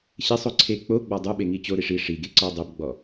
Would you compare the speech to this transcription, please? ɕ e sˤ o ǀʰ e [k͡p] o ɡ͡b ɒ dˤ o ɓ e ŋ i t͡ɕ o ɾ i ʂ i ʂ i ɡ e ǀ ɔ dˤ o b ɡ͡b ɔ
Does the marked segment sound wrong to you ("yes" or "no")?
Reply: no